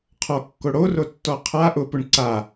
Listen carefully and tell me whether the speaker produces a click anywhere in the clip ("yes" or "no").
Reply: yes